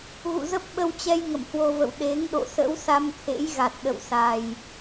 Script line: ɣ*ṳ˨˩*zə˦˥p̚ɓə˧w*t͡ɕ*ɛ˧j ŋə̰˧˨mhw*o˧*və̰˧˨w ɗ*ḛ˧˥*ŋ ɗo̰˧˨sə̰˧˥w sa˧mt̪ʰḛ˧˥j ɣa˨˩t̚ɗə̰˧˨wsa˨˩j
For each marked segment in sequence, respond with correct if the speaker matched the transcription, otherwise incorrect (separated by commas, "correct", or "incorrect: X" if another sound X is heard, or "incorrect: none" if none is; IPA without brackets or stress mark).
incorrect: ṵ˧˨, correct, correct, incorrect: e˨˦